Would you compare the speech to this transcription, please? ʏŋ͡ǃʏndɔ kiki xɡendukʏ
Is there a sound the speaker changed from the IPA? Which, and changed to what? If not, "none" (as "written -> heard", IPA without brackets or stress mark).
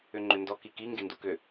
x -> ŋ